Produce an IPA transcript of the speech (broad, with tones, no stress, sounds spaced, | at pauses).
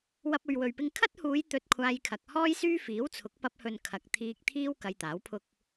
w ɐ˧ p̚ ɵ˨ ɥ w ɵ˨ ɥ p ɪ˧ ŋ kʰ ɐ˥ t̚ h uː˨˧ j t̪ ɵ˧ t̚ kʷʰ aː˧ j kʰ ɐ˨ k̚ h ɔː˥ j s yː˥ f iː˨˥ w t͡sʰ ʊ˨˥ k̚ p ɐ˧ p̚ h ɵ˨ n kʰ ɐ˨ k̚ t̪ʰ iː˧ k̚ t̪ʰ iː˥ w k ɐ˧ j t̪ aː˨˥ w pʰ ʊ˧ k̚